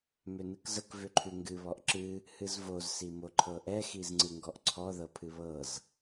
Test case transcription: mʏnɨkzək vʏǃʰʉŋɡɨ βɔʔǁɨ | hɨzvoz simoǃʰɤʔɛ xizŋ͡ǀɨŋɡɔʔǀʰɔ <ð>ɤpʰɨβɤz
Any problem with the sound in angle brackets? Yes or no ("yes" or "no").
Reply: no